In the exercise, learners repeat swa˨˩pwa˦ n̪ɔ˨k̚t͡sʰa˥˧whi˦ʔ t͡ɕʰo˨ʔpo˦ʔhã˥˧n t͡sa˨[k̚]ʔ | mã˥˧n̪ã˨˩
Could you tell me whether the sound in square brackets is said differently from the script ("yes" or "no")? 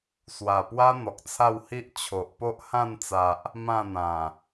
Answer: yes